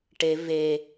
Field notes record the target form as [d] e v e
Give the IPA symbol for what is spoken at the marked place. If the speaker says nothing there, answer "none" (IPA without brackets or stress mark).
ʈ